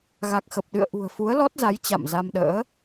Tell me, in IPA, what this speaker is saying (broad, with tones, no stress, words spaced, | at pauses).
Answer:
ɣa˨˩k̚xə˨˩p̚ɗɨ̰˧˨ə̯ ʔṳ˨˩ə̯fu˨˦ə̯lɔ˦˥t̚za˨˦j t͡ɕa̰˧˨mza˧mɗə̰ː˧˥